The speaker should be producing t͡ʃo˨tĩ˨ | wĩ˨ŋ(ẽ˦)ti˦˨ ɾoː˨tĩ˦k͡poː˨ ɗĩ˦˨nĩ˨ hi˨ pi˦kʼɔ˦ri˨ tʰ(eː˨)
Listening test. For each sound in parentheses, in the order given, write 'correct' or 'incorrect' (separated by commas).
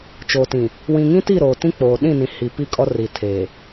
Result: incorrect, correct